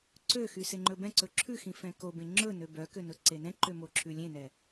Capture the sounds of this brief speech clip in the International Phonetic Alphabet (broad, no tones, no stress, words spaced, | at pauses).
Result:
ǀøxy seŋ͡ǃɵbɛ̃ǀɵ ǁʰʉxĩ fɛ̃kobẽ ŋ͡ǁɵnø bœkø nɵǀenɛ̃ǃø moǁʰʉlʲẽnɛ